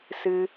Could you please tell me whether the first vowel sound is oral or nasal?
oral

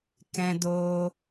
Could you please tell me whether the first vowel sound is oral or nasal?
nasal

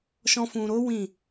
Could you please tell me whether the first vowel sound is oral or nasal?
nasal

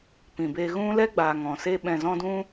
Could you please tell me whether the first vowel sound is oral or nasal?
nasal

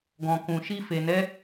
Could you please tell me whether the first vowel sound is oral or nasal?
nasal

